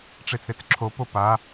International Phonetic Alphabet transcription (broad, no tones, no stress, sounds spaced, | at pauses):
ʈ͡ʂ e t͡s ɾ e t͡s ǁʰ o p o p a